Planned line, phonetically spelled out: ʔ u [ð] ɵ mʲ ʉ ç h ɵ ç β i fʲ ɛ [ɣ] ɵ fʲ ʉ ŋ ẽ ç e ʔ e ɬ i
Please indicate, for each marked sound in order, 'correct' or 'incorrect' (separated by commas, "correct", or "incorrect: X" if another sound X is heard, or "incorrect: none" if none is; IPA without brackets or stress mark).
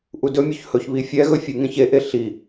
incorrect: d, correct